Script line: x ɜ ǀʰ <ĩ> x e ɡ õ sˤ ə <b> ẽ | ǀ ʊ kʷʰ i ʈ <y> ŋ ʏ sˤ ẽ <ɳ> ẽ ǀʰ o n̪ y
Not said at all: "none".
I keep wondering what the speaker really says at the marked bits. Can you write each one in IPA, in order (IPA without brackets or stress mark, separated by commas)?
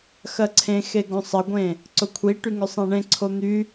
ẽ, ɡʷ, y, ɳ